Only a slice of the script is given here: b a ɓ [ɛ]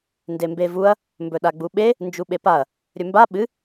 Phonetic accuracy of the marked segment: incorrect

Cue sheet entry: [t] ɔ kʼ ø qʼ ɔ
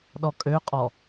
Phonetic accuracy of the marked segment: incorrect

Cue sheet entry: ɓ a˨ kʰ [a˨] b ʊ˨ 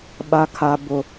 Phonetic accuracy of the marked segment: correct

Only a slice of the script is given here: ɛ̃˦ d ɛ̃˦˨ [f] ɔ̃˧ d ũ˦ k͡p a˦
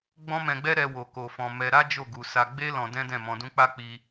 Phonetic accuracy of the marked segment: incorrect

